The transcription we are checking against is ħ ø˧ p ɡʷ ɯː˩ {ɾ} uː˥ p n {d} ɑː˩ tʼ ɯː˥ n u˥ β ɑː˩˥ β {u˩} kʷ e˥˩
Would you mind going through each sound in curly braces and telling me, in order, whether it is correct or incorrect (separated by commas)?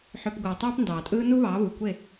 incorrect, correct, correct